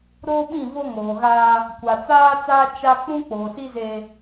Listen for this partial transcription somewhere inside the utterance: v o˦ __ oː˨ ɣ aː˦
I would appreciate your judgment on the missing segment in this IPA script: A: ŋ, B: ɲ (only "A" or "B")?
A